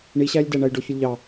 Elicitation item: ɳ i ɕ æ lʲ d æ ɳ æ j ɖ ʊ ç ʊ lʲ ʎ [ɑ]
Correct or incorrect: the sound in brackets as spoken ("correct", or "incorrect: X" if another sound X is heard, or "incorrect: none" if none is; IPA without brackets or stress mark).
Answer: correct